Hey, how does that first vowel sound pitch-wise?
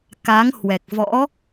rising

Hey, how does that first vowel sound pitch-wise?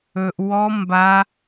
low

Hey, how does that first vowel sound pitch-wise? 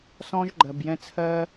high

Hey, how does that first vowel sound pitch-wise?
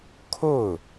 falling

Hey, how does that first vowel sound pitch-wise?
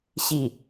falling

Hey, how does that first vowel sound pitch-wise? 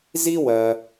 high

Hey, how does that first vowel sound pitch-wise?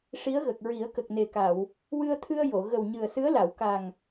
rising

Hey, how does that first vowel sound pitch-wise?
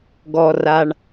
low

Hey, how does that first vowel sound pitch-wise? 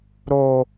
high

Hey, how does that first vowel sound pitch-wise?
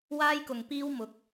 high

